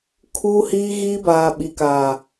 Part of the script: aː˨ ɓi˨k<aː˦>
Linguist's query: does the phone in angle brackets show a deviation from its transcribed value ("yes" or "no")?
yes